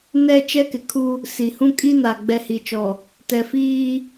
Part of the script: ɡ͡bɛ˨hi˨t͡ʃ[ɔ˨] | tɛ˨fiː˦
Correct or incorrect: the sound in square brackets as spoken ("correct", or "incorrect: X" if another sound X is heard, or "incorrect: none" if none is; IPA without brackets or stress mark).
correct